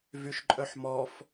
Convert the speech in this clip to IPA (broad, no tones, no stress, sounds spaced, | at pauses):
v y ʃ ǃʼ œ ħ m ɔ f